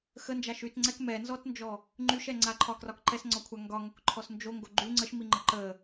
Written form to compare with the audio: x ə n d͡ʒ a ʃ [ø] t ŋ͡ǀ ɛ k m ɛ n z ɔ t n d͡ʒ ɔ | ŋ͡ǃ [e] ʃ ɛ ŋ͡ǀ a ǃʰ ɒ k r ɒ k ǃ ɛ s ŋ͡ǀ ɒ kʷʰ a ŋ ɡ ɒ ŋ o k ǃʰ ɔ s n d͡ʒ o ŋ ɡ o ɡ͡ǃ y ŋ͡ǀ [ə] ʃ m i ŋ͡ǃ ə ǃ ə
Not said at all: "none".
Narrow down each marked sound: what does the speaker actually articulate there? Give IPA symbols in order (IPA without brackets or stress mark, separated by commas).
y, y, ə